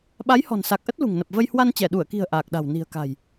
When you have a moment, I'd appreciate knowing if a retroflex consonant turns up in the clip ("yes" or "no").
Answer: no